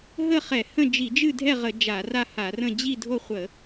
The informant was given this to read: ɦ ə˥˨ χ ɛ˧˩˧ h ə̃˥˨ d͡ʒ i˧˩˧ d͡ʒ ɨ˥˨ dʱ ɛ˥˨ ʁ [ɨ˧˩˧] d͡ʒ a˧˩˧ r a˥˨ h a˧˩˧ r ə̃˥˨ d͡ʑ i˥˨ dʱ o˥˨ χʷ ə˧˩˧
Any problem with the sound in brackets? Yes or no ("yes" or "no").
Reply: yes